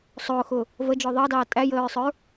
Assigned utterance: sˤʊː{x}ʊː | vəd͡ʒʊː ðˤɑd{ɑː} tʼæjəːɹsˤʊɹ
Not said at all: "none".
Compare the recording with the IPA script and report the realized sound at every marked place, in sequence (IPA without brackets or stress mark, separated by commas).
x, ɑː